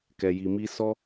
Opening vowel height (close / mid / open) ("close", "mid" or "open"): mid